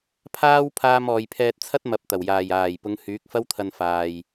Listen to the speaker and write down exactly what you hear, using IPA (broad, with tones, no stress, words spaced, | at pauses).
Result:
pʰaː˥wpʰaː˧mɔː˨j pʰɛː˧t̚t͡sʰɐ˥t̚mɐ˨˥p̚t̪ɐ˨˩w jaː˨˩jaː˨˩jpʊ˨˧ŋ hyː˨˥k̚fɐ˥wt̪ʰɐ˧nfaː˨j